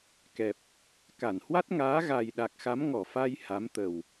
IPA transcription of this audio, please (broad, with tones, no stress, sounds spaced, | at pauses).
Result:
k ɛ˨˩ p̚ | k a˧˩ n h w a˦˥ t̚ ŋ aː˨˦ ɣ a˨˩ j ɗ a˨˩ k̚ x a˨˦ m ŋ ɔ˧˩ f a˧ j h a˨˦ m t̪ ə˨˩ w